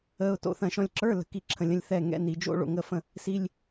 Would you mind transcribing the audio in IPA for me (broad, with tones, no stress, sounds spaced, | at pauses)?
əː˧˥˧ ʊ̯ t o̰˧˥˧ θ ɐ̃˥˩ ʃ ɔ̃˧ lʲ ǁ ə˞˧˥˧ l ə̤˧˥˧ k i˥˩ ǁʰ ə̃˧ lʲ ə̃˧ lʲ θ ɛː˥˩ ŋ ɛ̰˧˥˧ n i˨˩ d͡ʒ o̰˦˥ ɭ o̰˨˩ ŋ əː˥˩ f ə̃˥˩ | s i˧˥˧ lʲ